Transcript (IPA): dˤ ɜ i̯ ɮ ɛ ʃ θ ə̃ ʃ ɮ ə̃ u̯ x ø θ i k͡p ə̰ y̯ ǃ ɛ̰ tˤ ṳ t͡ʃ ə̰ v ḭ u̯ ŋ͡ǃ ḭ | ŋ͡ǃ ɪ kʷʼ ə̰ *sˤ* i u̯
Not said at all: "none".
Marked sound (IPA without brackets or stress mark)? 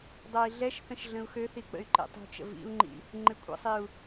sˤ